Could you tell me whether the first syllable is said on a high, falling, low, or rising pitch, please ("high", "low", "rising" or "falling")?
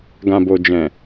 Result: low